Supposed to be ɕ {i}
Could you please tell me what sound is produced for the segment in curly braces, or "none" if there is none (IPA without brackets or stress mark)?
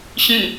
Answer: ĩ